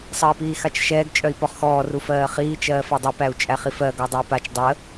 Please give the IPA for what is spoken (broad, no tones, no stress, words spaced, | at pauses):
sˤəːi̯piːxat͡ʃʃɛːɡ t͡ʃʼœi̯pɔχxɔː rufɜːχiː t͡ʃɜːfɜdˤu pæu̯t͡ʃʼæχifɜ ɡɔdˤəːpat͡ʃ dˤə